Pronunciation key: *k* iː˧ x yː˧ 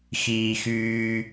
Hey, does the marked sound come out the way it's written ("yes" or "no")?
no